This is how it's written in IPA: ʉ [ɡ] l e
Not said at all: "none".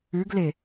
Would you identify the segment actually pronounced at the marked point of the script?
ɡ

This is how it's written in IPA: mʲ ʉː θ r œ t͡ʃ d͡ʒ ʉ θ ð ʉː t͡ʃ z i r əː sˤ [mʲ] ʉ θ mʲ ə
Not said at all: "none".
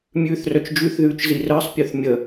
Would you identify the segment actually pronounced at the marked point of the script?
pʲ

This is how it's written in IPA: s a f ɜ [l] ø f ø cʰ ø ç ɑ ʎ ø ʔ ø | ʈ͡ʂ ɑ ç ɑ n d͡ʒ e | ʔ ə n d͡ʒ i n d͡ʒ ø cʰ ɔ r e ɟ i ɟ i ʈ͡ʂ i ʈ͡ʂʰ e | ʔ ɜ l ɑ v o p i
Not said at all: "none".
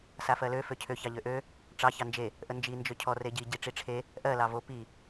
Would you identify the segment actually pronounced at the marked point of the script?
l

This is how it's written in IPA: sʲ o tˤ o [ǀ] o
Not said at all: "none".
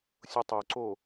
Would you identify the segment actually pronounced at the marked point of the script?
ǀ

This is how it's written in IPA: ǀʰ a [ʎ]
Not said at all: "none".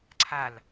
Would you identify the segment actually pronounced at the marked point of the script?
l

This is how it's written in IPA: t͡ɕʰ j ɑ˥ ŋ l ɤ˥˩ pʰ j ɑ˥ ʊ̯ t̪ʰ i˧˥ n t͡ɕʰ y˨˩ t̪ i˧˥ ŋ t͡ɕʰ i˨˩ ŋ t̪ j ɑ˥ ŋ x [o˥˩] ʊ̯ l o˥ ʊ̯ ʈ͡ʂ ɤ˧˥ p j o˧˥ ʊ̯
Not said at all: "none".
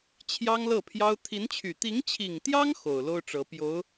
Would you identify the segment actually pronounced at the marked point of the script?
o˨˩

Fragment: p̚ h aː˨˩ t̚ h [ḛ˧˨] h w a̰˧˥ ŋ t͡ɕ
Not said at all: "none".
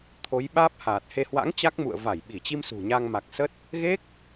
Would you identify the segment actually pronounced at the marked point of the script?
e˧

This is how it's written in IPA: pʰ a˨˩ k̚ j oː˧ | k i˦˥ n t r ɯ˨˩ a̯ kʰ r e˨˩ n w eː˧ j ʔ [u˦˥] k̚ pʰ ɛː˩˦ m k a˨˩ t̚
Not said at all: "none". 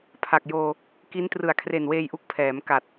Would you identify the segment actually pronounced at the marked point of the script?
u˦˥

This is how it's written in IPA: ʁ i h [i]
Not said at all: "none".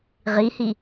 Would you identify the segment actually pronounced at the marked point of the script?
i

